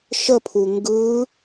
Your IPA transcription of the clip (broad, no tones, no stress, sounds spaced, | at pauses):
ʃ ə pʰ u ŋ ɡ ɯ